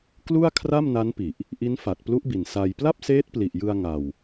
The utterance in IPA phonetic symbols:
klu˥˩a̯ kʰra˥˩mna˦˥npi˨˩ʔ | ʔi˦˥n fa˨˩t̚plu˦˥ʔbi˨˩n sa˧j pla˥˩p̚seː˦˥t̚pli˨˩ʔjɯ˧a̯ ŋa˧w

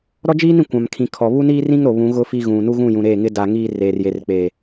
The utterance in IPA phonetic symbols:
ɾɔ˦d͡ʒiː˦nĩ˨ kʷã˨mkʰĩ˨kʰɔ˨ βu˦niː˦rĩ˦ŋ ɾo˨βũ˨˦ɣʊ˦ fi˦ɣũ˨ nu˦ɣũ˦˨jũ˨ɾeː˦˨ ŋɪ˦da˨ŋiː˦ reː˨r je˨rk͡peː˨

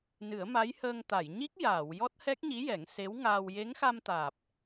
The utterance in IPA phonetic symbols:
nɨ˨˩˦ə̯ma˧˥jhəː˧ŋ t̪a˨˩˨jɲi˦˥k̚ jaː˨˩˨w jɔ˦˥t̚hɛ˦˥k̚ɲi˧˥jɛ˨˩˦ŋ se˧˥wŋaː˧w je˧˥ŋxa˧mt̪aː˨˩p̚

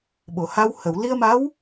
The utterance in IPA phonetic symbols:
ɓo˨˩˨ha˧w hə˨˩˨wli˧ə̯ma˧˥w

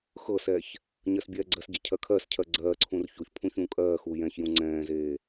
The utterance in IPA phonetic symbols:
xɤsɛç | ɲɜsbʲɛːɡ͡ǀɜsɟɐ cʰɜkʰɜscʰɜ ɡ͡ǀɜːǀʰũr çoçpʰũ çũːkʼɜːxuː jɛ̃çjũ ŋ͡ǀɛ̃ːzeː

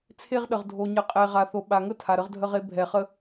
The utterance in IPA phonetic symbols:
t͡sʰe˦ʁɗə˨ʁ dʱo˨ɲə˨qʼe˨ʁa˨ θo˨ɓa˨ŋə˦ tʰa˨ɾə˦ʁdʱə˦ʁe˦ bʱɛ˨χə˦

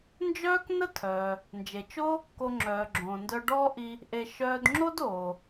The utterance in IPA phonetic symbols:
nd͡ʒœː˥knə˥ tʰœː˩ | nd͡ʒe˩t͡ʃo˥ | ko˧ŋ͡ǁœː˩ɡ͡ǁõː˩ ndœ˧ɖɔː˥ʔi˧ | ʔe˧ ʃœː˧dŋ͡ǁo˥doː˩

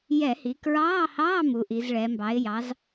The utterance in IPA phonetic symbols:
jɛ˧˩˧hi˩˧kɹɑː˧˥˧hɑː˧˥˧ mu˩˧ʔi˩˧zɭɛ˩˧mbɑ˨˥ɪ̯ jɑ˨˥z

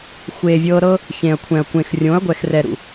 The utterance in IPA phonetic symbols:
xʷeː˨vʲɤː˧ɾɤ˦ | çẽ˨ɐ̯kʷʰɛ̃˨ɐ̯kʷẽ˨xrʲõ˨˦ɐ̯ ɡʷɛ˨xrɛ˨ɾṵ˨

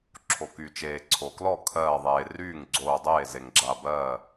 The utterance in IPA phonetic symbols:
ǁʰo˩ky˩t͡ʃeː˩ ǀʰo˩klɔ˥˩ kʰɜː˧˩ðˤeː˩ ryː˥˩ŋ ɡ͡ǀoː˧˩dˤeː˥˩ ze˩ŋɡ͡ǁa˧˩bɜː˥˩

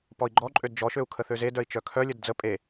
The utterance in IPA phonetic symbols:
pɔi̯ɡ͡ǃɔǃʼød d͡ʒɔʃøu̯ kʰəθøzedœi̯ t͡ʃœkʰœlʲəd d͡zə pʼe

